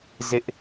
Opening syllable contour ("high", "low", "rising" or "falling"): high